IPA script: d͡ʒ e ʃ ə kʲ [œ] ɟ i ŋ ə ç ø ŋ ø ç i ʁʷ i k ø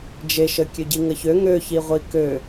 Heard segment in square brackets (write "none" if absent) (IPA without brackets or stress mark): ø